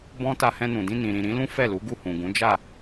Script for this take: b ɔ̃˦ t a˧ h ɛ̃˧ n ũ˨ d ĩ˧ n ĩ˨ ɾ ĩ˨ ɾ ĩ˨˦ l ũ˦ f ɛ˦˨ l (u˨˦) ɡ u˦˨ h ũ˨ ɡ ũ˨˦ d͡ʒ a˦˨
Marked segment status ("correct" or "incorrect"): correct